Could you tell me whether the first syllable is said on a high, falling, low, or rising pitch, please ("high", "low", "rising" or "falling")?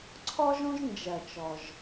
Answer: high